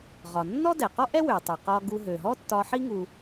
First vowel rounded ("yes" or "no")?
yes